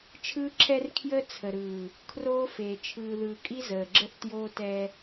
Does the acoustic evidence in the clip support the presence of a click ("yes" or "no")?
yes